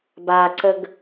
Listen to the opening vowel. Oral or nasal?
oral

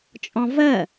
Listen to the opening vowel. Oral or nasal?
nasal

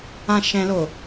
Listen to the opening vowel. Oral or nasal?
nasal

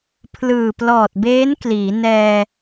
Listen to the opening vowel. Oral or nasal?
oral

